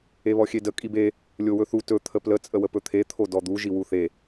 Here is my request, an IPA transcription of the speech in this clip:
eβɔxʲedə kʼibe | lʲowɵθu tɵ t̪ʰəplə t͡sʼəwəpɵt̪ʰe t̪ʰodɔd̪u ʒiwuθe

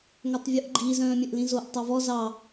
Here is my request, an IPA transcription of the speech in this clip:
ŋœtˤvʲuʔɡ͡ǃi zœ̃ːmʲœ̃ʔlĩzoʔ tˤɑvɔ zɑ

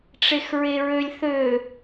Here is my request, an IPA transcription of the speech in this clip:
ʈ͡ʂexɹeɹølʲ θø

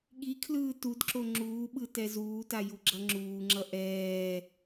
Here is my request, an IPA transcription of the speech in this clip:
ɠikʰlɯː tudǁo ŋ͡ǁuːɓɯ tɛzuːta juɡ͡ǁʌŋ͡ǁuːŋ͡ǁʌ ʔɛː

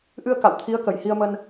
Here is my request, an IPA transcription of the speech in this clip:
ʔɨ˧ə̯ ka̰˧˨w t̪ʰi˨˦ə̯kə˧˩jhi˧ə̯mə˧n

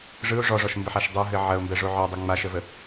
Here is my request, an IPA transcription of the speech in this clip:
ʐɯʊ̯ ʐɔʐɔʃmbəħaʃ dˤɯɦɘ ʕɐʊ̯mbɛʐo ʕɔdˤe ŋ͡maʃəvə

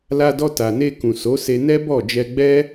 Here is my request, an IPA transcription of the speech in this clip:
la˧dɔ˧ta˨ne˧ kũ˨so˨˦se˧ nɛ˦bɔ˦˨ d͡ʒɛ˧ɡ͡bɛ˦

